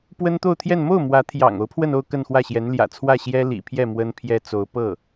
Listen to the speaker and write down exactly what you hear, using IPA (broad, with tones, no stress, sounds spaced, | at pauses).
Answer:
p w ə˥ n t̪ o˥˧ ʊ̯ t̪ʰ j ɛ˥˧ n m o˥˩ ʊ̯ m w ä˧˥ t̪ʰ j ɑ̰˨˩ ŋ o˧˥ ʊ̯ pʰ w ə˥˧ n o˥˧ ʊ̯ k ə˥˧ n x w ä˥˩ ɕ j ɛ˧˥ n l j ä̰˨˩ t͡sʰ w ä˥˩ ɕ j ɛ˥ l ḭ˨˩ pʰ j ɛ˥˩ m w ə˥ n pʰ j ɛ˥ t͡s o˧˥ ʊ̯ p ɤ˥˩